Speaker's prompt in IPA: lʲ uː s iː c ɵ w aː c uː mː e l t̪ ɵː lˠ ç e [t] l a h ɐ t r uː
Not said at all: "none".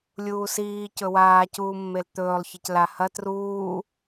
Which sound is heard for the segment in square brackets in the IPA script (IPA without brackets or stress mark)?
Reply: c